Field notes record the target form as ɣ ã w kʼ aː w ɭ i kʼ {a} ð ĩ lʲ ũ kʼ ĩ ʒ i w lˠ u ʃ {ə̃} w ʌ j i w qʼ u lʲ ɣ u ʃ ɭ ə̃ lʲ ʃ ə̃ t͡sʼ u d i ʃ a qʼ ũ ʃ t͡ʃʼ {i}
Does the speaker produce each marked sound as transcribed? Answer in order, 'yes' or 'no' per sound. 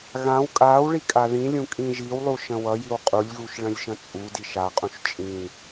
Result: yes, yes, no

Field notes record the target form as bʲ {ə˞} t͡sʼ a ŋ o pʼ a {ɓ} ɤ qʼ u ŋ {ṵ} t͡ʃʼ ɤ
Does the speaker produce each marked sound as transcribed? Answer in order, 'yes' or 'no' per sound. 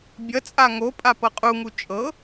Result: no, no, no

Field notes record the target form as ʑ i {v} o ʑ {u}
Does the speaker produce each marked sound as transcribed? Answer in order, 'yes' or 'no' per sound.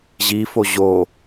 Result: no, no

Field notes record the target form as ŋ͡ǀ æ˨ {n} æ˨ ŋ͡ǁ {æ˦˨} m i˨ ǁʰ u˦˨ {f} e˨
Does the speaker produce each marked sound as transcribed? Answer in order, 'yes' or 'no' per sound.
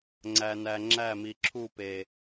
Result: yes, yes, no

